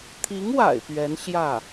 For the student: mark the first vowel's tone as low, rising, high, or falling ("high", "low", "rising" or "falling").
rising